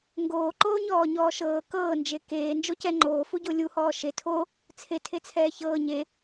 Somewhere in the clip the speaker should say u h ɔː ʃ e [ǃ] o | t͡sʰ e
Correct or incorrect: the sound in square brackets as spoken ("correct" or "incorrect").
incorrect